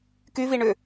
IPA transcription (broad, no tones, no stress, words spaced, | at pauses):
kyvi ɳʏ